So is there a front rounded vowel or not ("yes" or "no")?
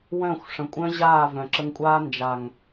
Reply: yes